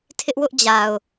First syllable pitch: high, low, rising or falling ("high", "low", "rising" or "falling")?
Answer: high